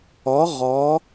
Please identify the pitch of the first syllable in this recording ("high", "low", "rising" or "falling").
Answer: rising